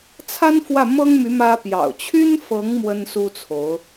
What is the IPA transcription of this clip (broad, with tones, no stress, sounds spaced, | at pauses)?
t͡sʰ a˥ n f w ä˥˩ m ɤ˥ ŋ m y˧˥ m ä˥ p j ɑ̰˨˩ ʊ̯ t͡ɕʰ y˥ n f ɤ˧˥ ŋ m w ə˥ n s u˥ t͡sʰ o˧˥ ʊ̯